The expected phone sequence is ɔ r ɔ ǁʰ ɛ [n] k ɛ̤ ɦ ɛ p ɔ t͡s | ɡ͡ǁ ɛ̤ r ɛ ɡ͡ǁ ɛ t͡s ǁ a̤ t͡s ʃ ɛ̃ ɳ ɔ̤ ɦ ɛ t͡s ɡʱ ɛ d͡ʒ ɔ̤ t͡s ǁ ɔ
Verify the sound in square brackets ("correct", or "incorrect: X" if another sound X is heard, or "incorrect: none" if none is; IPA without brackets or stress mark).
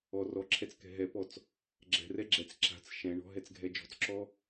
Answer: incorrect: t͡s